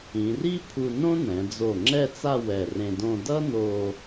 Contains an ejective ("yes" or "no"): no